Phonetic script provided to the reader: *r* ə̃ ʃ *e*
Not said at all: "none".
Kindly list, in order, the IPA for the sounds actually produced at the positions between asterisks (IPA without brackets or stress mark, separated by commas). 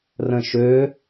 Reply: r, ø